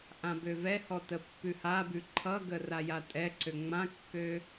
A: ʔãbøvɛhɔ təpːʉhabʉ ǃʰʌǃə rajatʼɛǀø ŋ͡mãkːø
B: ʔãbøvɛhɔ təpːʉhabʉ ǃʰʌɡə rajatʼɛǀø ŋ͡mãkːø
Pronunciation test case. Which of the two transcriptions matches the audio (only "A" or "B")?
B